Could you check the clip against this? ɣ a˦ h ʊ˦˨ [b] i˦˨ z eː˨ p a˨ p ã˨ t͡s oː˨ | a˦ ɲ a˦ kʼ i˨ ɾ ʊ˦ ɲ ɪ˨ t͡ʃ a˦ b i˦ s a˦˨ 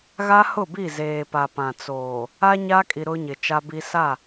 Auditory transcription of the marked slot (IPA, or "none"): b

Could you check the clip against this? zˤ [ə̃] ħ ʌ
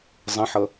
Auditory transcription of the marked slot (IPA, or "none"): ə̃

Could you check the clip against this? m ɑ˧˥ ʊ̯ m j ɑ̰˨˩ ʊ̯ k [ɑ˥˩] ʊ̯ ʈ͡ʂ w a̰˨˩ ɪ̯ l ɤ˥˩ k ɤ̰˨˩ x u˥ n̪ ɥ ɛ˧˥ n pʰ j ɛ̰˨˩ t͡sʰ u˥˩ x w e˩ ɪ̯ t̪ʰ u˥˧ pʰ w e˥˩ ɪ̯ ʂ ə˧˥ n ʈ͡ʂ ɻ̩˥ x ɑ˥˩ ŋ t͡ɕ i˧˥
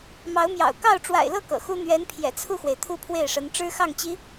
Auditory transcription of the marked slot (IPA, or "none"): ɑ˥˩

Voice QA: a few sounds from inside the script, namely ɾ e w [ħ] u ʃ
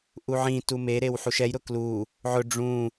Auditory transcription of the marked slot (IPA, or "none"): ħ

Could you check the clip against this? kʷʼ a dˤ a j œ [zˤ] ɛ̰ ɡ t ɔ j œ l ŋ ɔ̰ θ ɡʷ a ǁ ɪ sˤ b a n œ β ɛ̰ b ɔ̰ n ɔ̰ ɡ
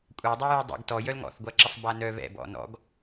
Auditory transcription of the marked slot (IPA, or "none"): dˤ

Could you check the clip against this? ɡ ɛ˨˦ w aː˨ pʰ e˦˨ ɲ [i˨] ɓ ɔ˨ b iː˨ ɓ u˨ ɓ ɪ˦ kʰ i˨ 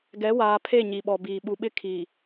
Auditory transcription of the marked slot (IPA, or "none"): i˨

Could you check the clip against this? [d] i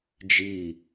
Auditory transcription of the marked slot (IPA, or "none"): d͡ʒ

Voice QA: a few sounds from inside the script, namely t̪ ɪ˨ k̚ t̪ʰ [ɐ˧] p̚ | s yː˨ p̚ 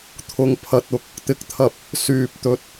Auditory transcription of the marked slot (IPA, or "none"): ɐ˨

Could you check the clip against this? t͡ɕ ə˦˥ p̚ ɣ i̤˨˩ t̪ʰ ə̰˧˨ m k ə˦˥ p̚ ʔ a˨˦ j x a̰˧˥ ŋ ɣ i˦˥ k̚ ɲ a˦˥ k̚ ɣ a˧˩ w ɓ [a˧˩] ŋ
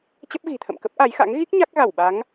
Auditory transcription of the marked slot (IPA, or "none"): a˨˦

